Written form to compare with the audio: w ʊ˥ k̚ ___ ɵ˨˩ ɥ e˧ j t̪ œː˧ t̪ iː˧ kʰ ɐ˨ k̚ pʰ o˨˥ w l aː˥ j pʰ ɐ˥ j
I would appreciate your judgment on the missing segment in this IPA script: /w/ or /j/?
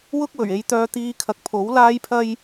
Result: w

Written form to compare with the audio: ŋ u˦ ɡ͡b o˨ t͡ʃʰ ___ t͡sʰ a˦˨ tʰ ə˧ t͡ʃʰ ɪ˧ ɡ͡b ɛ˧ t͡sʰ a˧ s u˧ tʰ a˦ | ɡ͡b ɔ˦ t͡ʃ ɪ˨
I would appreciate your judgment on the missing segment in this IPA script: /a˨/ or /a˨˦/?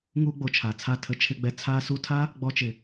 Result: a˨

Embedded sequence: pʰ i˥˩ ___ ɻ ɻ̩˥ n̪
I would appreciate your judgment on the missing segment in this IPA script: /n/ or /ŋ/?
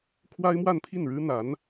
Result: n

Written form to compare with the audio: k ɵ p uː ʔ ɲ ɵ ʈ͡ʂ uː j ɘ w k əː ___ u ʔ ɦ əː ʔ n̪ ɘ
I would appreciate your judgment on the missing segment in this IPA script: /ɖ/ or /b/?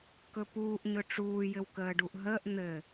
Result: ɖ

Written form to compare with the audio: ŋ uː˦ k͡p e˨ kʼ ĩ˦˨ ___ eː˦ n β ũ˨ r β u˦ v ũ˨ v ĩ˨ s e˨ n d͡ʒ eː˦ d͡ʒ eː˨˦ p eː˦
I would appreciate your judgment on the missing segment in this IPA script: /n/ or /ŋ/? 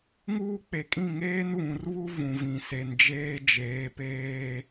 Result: ŋ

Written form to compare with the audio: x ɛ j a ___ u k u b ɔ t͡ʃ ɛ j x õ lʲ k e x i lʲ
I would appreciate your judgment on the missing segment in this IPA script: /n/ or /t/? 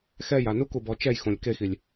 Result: n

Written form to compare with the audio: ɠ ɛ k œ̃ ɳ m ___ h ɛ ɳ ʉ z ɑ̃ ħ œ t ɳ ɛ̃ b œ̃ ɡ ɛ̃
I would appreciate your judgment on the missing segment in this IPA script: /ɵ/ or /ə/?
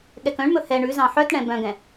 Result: ɵ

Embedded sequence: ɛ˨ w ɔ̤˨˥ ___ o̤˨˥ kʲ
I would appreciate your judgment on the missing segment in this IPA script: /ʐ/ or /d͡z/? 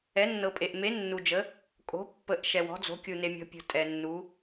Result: d͡z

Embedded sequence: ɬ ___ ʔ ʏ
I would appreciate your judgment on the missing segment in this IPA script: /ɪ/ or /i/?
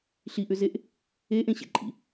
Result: i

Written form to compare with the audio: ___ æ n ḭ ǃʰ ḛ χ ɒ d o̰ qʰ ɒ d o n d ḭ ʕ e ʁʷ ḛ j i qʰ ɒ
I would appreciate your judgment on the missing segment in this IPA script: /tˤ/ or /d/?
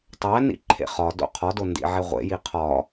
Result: tˤ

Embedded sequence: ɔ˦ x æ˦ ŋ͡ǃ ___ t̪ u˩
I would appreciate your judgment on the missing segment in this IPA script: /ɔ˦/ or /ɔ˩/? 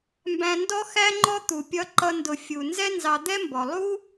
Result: ɔ˦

